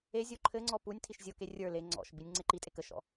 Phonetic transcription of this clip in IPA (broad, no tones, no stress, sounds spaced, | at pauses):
e zʲ o ǃʰ ɘ ŋ͡ǀ ɔ p u nʲ tʰ i ʃ zʲ o k e rʲ ə˞ l e ŋ͡ǀ ɔ̰ ʃ b i nʲ ŋ͡ǀ e ǃ i tʼ e k ə ʃ ɔ̰